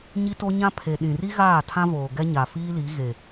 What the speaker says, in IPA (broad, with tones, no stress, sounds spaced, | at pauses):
ɲ i˦ t o˦ ɲ ã˦ pʰ e˨ ɗ ĩ˨ r i˦ ɣ aː˦˨ tʰ ã˦ v oː˨ ɡ ɛ˦ ɲ a˨ f iː˦ l i˨˦ ɣ e˨